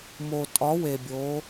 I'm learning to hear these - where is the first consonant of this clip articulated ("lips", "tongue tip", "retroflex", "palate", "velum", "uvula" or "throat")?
lips